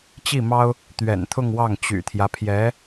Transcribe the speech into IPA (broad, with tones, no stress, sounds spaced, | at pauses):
t͡ɕ i˥˩ m ɑ˥ ʊ̯ | t̪ ɥ ɛ̰˨˩ n t̪ʰ ʊ˥˧ ŋ w ɑ˥˩ ŋ t͡ɕ y̰˨˩ t̪ʰ j ä˦ pʰ j ɛ˧˥